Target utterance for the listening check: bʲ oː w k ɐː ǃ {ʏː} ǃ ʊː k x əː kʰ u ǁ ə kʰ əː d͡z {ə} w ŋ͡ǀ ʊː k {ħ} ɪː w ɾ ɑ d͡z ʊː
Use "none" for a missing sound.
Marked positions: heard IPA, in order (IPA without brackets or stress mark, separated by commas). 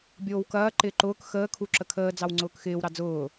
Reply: ɪː, ɑ, x